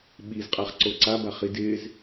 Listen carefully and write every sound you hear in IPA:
ɓizqʼaχǀo ǀabaχi dɪz

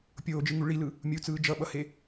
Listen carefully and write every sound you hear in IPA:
pʲoːd͡ʒɯŋu ɭilɯ | mʲut͡sɯː d͡ʒʌɓʌhe

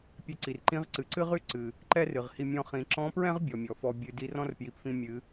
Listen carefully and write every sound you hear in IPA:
pʲɛ˧ǀi˩rǃĩ˧˥ʁ ǀɨ˩ǀɨ˥ʁy˥ ǀɨ˩ | ǃɛ˥rɨ˩ʁhi˧ mʲɔ̃˧χĩ˩˧ ǁɔ̃˧˥pɹɛ̃˥ʁ bʲɔ˩mʲɔ˩fɔ˧ bʲɨ˩di˧rɔ̃˥r pji˩pfĩ˧mʲɨ˩˧

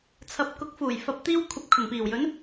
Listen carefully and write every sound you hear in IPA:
t͡sʰɐ˨˥p̚kʊ˨˥k̚fuː˨˩j fɐ˨p̚t̪iː˧wkʷʰɐ˨p̚ kʰʊ˨˩ŋpiː˨˩wjɵ˨˥n

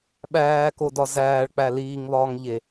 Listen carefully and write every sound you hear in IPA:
ɓæːkodɒ zæːɭk͡pæ liːŋβɒːŋʎe

